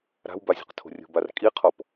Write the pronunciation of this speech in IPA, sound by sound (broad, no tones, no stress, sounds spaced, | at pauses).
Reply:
ɾ a̤ w b a zʲ o̤ q tʰ o̤ rʲ o̤ b a r kʼ i qʰ ɔ p